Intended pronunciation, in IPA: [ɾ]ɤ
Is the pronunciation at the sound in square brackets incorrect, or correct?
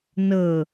incorrect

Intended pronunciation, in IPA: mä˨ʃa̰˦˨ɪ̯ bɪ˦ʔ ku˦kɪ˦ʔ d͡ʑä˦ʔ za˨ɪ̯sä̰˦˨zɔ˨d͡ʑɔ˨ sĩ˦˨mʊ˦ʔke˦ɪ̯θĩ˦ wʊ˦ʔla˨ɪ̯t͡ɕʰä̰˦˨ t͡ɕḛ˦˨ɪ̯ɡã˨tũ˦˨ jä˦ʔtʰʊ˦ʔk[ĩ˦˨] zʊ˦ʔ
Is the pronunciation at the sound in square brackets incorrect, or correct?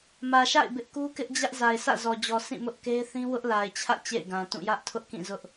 correct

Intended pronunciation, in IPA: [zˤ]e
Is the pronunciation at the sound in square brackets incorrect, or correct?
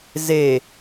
incorrect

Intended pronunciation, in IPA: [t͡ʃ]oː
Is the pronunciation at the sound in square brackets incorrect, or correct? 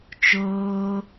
correct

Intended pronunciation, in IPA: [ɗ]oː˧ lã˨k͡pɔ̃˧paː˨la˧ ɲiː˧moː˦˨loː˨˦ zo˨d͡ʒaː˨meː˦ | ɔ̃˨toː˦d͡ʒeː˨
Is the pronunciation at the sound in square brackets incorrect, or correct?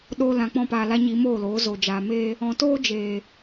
correct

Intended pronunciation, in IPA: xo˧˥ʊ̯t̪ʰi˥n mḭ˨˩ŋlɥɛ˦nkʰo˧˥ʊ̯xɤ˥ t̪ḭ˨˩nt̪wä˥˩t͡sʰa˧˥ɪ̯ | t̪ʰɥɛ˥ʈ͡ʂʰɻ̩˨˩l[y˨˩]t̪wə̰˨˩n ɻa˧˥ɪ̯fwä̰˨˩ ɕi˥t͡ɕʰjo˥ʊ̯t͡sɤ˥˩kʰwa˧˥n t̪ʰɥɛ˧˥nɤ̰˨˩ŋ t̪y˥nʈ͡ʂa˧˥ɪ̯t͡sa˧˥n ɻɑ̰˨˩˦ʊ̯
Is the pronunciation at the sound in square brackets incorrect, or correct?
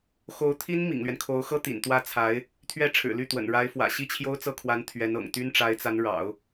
incorrect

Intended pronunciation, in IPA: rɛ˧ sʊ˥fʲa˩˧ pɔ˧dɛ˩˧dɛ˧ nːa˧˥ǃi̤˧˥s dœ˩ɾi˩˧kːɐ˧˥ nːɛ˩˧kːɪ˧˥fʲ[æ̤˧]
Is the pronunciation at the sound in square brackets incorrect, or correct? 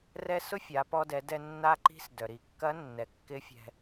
incorrect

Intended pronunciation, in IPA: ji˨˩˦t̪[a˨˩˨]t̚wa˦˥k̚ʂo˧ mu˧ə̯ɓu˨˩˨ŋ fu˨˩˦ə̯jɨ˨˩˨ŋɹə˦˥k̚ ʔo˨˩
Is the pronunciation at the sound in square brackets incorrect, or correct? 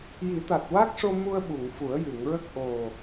incorrect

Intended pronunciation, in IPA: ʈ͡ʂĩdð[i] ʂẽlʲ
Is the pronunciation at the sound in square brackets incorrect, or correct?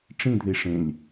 correct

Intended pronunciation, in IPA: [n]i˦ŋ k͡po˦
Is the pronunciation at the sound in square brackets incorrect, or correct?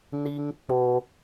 correct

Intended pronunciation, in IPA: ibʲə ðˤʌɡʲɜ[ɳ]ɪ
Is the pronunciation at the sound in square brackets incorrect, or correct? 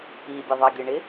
correct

